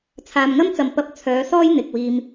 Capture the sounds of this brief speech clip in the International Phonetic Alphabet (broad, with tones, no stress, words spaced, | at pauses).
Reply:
t͡sʰaː˨mŋɐ˥mt͡sɐ˨m pɐ˧p̚ t͡sʰœː˨˧sɔː˥j n̪ɪ˨k̚ wiː˨m